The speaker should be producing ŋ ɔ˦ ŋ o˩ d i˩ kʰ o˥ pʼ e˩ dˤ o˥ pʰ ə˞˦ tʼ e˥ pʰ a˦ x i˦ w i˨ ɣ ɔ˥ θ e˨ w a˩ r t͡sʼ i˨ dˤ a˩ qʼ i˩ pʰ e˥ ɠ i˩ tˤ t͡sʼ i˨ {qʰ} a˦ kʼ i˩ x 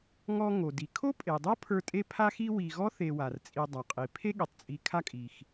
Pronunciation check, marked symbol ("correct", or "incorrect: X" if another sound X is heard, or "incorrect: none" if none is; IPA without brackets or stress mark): incorrect: kʰ